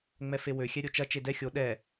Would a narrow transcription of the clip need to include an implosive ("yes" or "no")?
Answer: yes